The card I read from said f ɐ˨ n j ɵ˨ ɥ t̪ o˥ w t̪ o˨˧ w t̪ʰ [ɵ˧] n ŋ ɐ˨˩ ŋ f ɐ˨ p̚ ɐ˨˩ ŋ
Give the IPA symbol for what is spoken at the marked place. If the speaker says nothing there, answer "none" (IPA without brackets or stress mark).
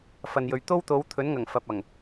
ɵ˨˥